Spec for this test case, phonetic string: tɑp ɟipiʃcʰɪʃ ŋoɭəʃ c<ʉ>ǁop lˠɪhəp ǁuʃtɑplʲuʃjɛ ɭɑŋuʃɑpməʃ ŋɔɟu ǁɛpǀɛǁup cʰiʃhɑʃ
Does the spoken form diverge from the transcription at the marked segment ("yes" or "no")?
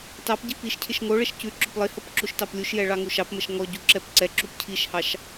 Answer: no